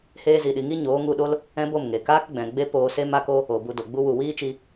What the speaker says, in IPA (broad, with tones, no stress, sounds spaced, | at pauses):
h eː˧ z i˨ ɗ i˨ ŋ i˦ ɲ oː˨˦ ŋ u˧ ɗ o˦ l | ɛ̃˦ b o˦˨ m ŋ e˨ k aː˦ k ɡ͡b ɛ̃˨ ɡ͡b e˦ p oː˧ s e˦ m a˦ k o˦ | o˨ b u˧ d o˨ ɡ͡b u˦ w u˨ w iː˦ t͡ʃ i˧